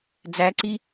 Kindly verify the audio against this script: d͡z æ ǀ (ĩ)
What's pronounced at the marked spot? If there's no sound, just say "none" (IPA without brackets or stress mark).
i